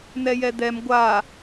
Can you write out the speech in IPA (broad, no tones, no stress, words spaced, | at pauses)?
n̪ɛjɛd̪ɛm ɡʷa